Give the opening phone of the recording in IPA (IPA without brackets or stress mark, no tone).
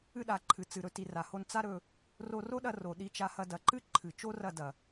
ɨ